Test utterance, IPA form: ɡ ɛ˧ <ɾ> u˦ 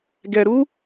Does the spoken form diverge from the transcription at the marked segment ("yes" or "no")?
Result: no